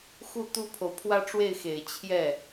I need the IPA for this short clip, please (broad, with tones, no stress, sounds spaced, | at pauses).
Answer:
x u˥˩ t̪ u˥ pʰ o˨ ʊ̯ pʰ w ä˥ ʈ͡ʂ w e˥˩ ɪ̯ x e˨˩ ɪ̯ t͡ɕʰ j ɛ˥˩